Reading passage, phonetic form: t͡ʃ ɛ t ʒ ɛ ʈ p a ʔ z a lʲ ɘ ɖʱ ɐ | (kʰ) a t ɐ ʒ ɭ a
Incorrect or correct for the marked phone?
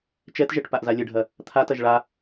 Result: incorrect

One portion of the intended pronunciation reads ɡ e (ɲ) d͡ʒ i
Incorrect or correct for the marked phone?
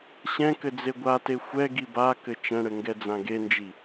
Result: incorrect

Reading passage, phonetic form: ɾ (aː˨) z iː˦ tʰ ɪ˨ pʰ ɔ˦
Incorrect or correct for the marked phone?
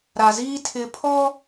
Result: incorrect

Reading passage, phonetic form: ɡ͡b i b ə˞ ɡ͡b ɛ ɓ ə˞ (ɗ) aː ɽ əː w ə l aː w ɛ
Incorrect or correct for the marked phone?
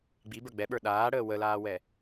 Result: correct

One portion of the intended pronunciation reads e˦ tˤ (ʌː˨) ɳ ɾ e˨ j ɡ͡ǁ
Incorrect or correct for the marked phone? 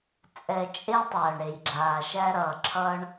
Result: correct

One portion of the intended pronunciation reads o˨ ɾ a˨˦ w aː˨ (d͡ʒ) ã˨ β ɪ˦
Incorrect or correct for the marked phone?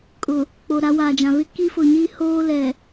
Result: correct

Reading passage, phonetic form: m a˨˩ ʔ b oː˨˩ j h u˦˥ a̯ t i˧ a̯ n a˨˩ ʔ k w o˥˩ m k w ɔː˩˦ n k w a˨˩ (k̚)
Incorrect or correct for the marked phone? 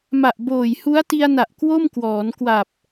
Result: incorrect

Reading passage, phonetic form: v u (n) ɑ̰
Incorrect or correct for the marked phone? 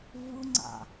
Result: incorrect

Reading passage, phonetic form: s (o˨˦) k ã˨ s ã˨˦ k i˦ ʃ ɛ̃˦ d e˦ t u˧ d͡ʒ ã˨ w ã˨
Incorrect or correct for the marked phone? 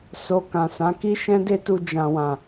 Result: incorrect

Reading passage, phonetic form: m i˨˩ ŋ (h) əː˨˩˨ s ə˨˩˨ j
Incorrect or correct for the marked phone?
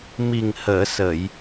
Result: correct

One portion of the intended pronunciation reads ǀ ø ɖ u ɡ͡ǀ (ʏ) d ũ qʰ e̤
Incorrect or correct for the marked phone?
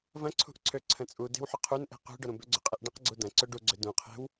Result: correct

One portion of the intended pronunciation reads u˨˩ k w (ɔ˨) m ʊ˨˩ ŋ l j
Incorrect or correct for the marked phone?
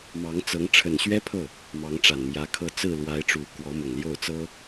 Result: incorrect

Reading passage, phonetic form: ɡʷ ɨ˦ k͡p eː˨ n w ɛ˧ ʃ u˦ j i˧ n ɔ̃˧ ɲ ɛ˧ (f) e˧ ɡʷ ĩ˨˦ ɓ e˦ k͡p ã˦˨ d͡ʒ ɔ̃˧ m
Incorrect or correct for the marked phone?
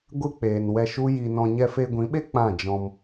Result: correct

